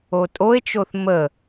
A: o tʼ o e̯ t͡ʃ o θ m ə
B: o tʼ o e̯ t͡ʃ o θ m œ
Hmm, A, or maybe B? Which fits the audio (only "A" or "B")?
A